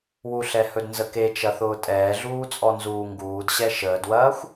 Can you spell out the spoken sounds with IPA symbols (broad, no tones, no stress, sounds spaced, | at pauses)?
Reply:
w u ɬ ɛ h ɵ d n z ə k e t͡ʃ ɐ θ ʊː tʼ ɛː ɮ uː t͡sʼ ɔ n z uː ŋ ɡ uː d ɕ ɛ ʃ əː d w ɐː xʷ